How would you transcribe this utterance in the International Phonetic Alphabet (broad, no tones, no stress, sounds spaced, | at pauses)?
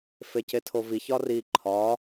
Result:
f e c e tʰ o v i ç ɒ r i ǃʰ ɒ